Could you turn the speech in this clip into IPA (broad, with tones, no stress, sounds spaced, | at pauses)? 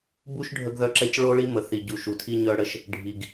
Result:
b u˦ ʃ ɖʱ ə˦ ɡ ð œ˦ ǁ ɛ˦ c ɭ o˦ ɭ i˦ m ə˨ θ i˨ ɟ u˨ ʃ u˨ tʰ i˦ ɲ œ˦ ɽ ə˦ ʃ | ɖʱ i˨ ɡ